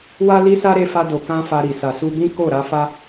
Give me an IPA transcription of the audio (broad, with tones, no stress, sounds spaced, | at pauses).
w a˦ l i˦ s a˦ ɾ e˧ f a˧ d o˨ k ã˧ f a˧ ɾ i˨ s a˨ s u˧ b ĩ˦ k o˦˨ ɾ a˧ f a˦